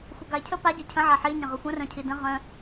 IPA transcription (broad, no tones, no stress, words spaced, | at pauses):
xʷœɡaɪ̯cʰə pa ɟœcʰə̃ ʕaħi ɲə̃ʁœxʷə̃ rœ̃cʰidə̃ ʁœ̃